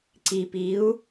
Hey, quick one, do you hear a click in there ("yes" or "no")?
yes